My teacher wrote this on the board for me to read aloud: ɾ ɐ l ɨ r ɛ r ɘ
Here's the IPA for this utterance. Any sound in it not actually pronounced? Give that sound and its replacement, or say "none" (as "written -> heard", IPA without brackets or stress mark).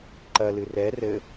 ɾ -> ǃ